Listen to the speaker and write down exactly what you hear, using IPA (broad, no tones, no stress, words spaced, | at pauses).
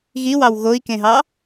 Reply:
ɣiwɑw ɣoi̯kẽɦɑ